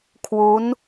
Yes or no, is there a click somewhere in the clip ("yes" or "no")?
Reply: no